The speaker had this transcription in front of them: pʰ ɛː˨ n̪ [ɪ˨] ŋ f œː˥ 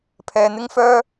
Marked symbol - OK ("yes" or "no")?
no